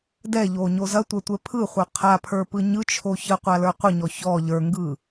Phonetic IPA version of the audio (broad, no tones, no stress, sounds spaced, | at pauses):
d ɛ ʎ o ɲ o z ɐ tʷ ɐ tʷ ɛ pʰ ɯ χʷ ə˞ qʰ a pʰ ə˞ p ɯ ɲ ɯ t͡ʃʰ o ç ə qʷ a l ə˞ qʷ ə ɲ ɔ ç ɔ ʎ ə˞ ŋ ɡ ɯ